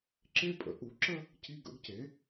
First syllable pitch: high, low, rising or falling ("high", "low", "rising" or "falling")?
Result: high